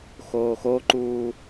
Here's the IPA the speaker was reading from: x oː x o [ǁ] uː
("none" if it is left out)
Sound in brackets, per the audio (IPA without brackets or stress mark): ǃ